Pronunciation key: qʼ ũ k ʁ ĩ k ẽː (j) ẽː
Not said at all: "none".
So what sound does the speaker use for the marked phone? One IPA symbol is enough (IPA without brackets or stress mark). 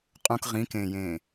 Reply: j